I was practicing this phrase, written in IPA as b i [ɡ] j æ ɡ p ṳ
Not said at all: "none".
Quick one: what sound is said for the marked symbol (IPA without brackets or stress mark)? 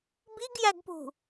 ɡ